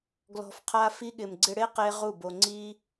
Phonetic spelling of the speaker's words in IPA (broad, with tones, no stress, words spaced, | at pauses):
ɡlɔ̤˧fqʰa˦ fi˧ɠɪ˨mɡ͡ǀɪ˧ɽe˦ qe˦ ʁu˦˨bo˧ ŋ͡ǀi˦